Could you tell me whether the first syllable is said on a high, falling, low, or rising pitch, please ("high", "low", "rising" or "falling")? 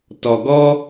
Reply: low